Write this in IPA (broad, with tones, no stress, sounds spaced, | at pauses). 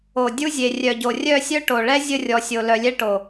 o˨ dʲ u˦ zʲ e˨ rʲ œ˨ ɟ o˨ rʲ œ˦˨ sʲ œ˦ ʈ o˨ ɭ ɛ˦ zʲ ə˦˨ rʲ ɔ˨ sʲ o˨ l œ˨ lʲ ɛ˦ ʈ o˨